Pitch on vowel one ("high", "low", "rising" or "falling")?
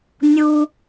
high